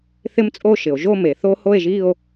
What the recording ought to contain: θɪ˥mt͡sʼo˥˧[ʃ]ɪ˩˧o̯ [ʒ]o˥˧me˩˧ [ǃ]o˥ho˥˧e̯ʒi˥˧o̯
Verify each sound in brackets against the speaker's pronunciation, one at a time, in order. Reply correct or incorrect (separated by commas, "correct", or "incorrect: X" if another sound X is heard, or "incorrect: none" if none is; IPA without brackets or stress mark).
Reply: correct, correct, incorrect: θ